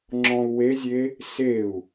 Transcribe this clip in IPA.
ŋ͡ǁ ɔ̃ u̯ w e zʲ e | s e u̯

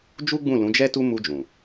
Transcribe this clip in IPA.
d͡ʒ u˦ ɡ͡b ũ˦˨ l ũ˨˦ d͡ʒ ɛ˦ t u˦ m u˧ d͡ʒ ũ˨

